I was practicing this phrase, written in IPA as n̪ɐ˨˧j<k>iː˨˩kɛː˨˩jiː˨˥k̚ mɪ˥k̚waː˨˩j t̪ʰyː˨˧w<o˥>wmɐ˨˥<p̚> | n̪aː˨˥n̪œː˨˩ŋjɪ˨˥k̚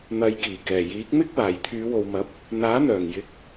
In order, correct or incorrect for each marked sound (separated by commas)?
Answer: correct, incorrect, correct